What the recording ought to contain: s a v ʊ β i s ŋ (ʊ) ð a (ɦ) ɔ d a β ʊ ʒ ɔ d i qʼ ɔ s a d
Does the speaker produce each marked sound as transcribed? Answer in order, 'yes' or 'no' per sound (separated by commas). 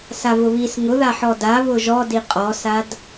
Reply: yes, no